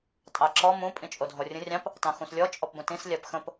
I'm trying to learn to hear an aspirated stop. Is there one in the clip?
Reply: no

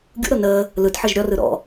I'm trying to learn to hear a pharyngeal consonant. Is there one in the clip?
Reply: yes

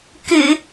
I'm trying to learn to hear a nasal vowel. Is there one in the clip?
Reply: no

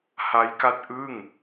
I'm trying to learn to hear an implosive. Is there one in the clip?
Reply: no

